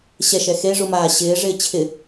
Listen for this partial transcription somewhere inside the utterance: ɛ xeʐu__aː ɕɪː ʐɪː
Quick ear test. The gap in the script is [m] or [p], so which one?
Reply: m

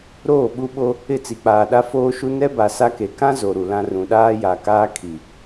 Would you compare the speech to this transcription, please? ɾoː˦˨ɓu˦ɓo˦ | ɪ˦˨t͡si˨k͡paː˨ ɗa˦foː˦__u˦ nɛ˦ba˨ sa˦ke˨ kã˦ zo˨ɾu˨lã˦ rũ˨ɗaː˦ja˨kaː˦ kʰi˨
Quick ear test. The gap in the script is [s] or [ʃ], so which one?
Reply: ʃ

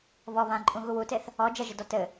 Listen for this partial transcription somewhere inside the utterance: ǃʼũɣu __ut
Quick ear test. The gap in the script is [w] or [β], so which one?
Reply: w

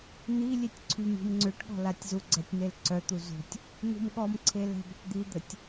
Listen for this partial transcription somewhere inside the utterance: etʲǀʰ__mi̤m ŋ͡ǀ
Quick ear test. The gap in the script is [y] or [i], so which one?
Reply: y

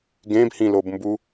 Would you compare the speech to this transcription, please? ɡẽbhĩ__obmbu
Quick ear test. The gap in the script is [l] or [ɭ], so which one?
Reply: l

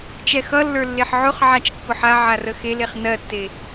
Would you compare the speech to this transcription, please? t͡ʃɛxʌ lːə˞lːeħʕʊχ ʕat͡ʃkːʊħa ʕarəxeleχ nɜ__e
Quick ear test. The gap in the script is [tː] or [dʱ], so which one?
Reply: tː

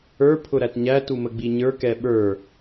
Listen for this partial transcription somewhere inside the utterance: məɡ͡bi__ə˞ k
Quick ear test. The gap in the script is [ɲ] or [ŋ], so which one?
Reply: ɲ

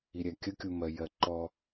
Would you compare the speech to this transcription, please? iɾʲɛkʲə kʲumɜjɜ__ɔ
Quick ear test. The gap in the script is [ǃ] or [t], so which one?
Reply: ǃ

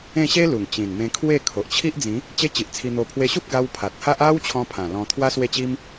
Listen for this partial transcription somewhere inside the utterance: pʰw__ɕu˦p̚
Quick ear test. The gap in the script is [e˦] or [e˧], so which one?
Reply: e˧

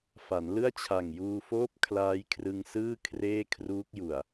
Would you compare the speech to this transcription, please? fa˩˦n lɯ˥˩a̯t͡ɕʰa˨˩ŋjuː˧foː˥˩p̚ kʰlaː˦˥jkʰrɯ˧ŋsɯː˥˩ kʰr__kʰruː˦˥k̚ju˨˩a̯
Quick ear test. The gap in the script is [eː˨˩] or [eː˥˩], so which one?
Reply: eː˥˩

